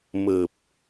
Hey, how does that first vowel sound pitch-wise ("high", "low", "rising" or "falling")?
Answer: low